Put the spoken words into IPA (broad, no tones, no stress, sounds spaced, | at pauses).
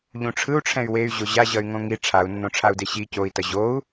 ʎ ũ ʈ͡ʂʰ ɯ u̯ ʈ͡ʂʰ ɛ̃ y̯ w e y̯ ʑ o ʑ a ʑ ʌ y̯ ŋ õ ŋ i ʈ͡ʂʰ a u̯ nː õ ʈ͡ʂʰ a u̯ d e ɕ i c o i̯ t ʌ ʑ o u̯